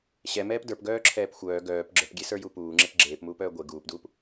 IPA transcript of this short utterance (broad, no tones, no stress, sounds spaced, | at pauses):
ɕ ɛ m ɛː p d ə˞ p ɡ œː ǁʰ ɛː p xʷ œː ɡ œː p ɡ͡ǁ ə˞ p ɡʲ e s ə˞ j u p uː ŋ͡ǁ e p ɡ͡ǁ eː p m uː p œː ɡʷ e ɡ uː p d uː p